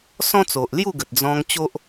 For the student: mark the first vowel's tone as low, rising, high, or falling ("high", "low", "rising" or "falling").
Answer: high